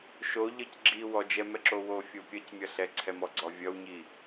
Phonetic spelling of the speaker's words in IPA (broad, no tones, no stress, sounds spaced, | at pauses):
ʃ o ʎ ʌ c ɡ͡ǁ i w ɔ d͡ʒ ɛ m ɛ ǁ o w o fʲ o pʲ ʌ c mʲ ʌ ɬ ɛ ǀʰ ɛ m ɔ ɡ͡ǀ ɔ vʲ ʌ w ɲ i